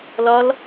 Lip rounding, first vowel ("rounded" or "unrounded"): rounded